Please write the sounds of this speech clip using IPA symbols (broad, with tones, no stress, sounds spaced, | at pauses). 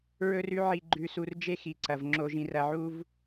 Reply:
ɹ ɵ˦ r ʉ˦ ʕ i˧ ɡ͡ǃ ʉ˧ s u˧ r d͡ʒ e˦ x i˨ ǀ ɐ˨ v ŋ͡ǁ o˧ ʒ ĩ˧ r ɐ˧ ʕ u˦ v